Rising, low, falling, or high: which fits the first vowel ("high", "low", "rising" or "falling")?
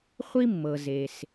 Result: high